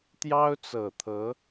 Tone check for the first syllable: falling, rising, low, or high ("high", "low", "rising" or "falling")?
high